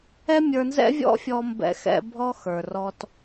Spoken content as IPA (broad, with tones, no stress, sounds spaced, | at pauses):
ɛ˦ mʲ ə˞˧ n z ɛ̰˦ vʲ ɔ̰˦ fʲ ɔ˧ m b ɛ̰˧ x ɛ̰˧ bʱ ɔ˦ x ə˞˨ r ɔ˧ t